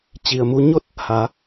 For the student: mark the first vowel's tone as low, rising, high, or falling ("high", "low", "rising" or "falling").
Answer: low